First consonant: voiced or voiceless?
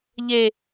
voiced